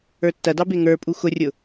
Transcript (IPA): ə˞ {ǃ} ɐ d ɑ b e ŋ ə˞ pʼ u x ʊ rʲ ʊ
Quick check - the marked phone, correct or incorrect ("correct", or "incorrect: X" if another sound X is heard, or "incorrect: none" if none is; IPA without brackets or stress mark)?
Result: incorrect: tː